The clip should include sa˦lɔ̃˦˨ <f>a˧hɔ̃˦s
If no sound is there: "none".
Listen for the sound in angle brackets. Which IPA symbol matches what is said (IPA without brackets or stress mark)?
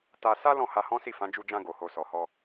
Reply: h